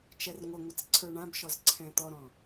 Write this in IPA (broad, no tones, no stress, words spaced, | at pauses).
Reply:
t͡ʃɛrŋʷəŋʷət͡s ǀʰə˞ɳãbʃɔz ǀʰɛ̃t̪ɔɾɔ̃